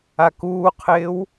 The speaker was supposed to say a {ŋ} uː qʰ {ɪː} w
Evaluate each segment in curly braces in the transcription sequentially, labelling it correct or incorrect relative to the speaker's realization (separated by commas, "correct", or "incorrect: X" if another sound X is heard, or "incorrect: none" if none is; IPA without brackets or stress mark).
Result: incorrect: k, correct